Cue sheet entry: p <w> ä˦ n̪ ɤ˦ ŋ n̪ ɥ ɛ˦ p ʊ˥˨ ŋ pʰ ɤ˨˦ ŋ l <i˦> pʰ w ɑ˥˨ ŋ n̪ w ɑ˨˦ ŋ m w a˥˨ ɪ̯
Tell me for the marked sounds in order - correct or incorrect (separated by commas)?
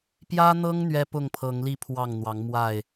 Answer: incorrect, incorrect